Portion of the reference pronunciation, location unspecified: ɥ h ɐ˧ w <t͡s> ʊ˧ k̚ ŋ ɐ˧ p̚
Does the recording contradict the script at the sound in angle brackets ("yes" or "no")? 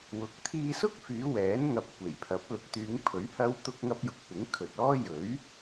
yes